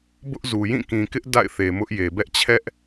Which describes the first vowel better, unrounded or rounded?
rounded